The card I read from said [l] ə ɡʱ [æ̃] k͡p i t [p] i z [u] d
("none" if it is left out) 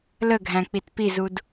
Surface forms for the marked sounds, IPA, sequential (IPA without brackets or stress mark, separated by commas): l, æ̃, p, u